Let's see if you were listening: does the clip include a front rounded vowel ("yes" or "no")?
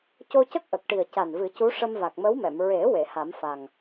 no